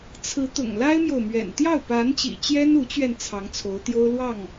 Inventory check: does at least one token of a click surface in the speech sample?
no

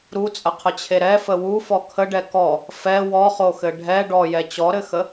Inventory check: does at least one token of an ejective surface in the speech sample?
yes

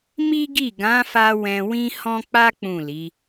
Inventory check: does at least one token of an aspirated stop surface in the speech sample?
no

